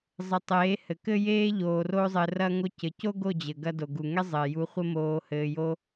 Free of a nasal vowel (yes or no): yes